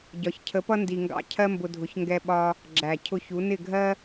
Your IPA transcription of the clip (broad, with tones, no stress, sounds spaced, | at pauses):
ɟ ɒ˩ ç cʰ ə˩˥ p ʌ˥ n d i˩ ŋ ɡ ɑ̰˧ cʰ ɜ˥ m b ʊ˧ dʱ ʊ˩˥ ç ŋ ɡ ɛ˧ ɓ ɒ˧ | ɡ͡ǁ æ˩ cʰ ʊ˧ ç u˩˥ n ɪ˥˩ ɡʱ ɜ˥